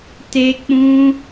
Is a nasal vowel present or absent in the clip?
present